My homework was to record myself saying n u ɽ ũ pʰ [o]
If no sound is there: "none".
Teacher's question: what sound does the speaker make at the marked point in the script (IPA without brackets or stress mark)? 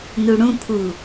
u